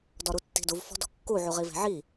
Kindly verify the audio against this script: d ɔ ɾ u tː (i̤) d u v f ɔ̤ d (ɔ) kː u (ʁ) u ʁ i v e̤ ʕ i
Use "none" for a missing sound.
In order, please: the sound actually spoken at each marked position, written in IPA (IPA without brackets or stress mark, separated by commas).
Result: i̤, ɔ̤, ʕ